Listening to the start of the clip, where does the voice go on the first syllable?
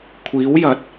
rising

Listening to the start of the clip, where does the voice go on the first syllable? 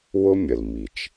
high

